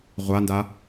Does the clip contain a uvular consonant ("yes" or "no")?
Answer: yes